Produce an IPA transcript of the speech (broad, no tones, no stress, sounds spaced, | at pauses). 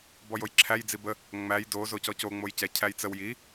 b ɔ j o j ǁʰ æ j d͡z i b ə | ŋ͡m æ j d o z o c ɔ c o ŋ͡m o j c ɛ cʰ æ j t͡s ə w j i